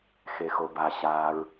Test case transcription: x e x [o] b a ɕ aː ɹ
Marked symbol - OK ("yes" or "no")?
yes